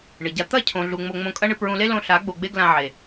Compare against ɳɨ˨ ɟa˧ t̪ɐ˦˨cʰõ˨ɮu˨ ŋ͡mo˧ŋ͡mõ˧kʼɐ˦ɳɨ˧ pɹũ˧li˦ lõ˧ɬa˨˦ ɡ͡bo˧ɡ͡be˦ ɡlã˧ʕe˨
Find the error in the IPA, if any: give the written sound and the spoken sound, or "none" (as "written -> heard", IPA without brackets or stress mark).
i˦ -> e˦